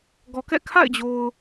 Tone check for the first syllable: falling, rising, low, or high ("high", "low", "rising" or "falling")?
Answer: low